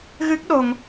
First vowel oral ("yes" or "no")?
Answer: yes